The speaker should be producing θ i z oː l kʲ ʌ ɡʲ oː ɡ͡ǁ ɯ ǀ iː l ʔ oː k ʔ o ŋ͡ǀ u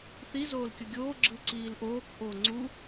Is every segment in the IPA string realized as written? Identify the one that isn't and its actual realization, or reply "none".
none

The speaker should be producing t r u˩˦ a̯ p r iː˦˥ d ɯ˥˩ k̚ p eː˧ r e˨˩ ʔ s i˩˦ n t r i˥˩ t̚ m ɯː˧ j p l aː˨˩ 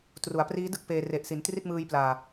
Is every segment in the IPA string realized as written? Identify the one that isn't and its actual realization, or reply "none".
none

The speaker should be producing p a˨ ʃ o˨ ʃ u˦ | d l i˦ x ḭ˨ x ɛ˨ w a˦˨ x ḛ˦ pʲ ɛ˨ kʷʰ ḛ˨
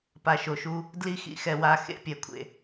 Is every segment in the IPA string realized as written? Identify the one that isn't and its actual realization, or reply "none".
none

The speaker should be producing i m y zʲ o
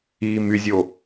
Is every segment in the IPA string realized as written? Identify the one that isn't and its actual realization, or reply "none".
none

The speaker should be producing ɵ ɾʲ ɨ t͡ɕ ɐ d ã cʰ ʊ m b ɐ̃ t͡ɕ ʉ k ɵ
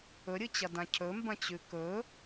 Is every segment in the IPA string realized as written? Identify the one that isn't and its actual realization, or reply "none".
ʊ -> ɵ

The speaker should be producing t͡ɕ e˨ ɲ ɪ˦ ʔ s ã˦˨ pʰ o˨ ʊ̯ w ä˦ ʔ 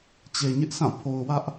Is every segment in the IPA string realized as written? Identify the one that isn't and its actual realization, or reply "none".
none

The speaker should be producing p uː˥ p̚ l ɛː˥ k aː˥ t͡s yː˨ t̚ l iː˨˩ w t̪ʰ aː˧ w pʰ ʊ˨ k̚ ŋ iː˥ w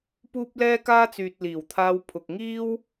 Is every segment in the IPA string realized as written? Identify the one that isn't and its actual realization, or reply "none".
none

